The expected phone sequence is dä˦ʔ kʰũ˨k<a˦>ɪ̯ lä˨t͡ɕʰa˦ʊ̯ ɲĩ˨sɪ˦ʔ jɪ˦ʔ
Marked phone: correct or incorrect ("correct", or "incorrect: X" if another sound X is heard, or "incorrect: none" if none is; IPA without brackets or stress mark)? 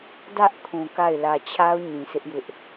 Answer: incorrect: a˦˨